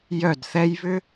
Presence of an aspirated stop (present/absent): absent